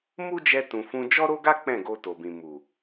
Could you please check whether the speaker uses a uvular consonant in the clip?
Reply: no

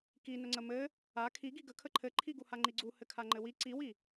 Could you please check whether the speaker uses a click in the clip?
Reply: yes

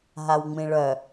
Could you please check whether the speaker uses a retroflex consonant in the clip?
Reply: yes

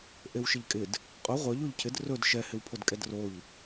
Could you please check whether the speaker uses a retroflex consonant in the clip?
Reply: no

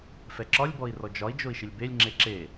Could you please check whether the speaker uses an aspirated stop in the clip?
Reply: no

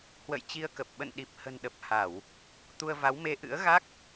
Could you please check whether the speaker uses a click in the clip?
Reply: no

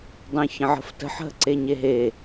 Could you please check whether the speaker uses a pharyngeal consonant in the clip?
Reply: yes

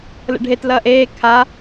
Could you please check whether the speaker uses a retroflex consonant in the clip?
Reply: yes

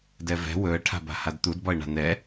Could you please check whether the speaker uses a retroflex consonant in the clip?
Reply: yes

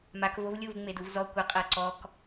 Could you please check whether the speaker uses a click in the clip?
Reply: yes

